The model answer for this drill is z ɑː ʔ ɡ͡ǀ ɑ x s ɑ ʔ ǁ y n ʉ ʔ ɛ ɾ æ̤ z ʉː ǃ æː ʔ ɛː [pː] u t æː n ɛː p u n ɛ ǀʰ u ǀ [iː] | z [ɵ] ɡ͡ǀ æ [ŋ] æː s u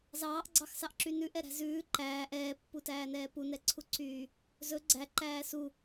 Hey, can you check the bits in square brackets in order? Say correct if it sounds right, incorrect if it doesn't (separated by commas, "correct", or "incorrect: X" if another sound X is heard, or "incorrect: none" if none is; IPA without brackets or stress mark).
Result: correct, incorrect: yː, correct, incorrect: ǃ